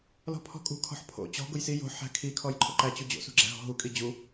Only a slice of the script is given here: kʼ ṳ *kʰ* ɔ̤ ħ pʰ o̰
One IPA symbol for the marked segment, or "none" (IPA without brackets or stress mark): kʰ